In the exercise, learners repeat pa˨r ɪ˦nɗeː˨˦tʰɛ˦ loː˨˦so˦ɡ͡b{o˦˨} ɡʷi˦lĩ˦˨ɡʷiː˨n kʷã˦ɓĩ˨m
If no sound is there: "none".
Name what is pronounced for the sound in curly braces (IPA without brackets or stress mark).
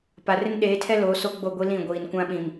o˦˨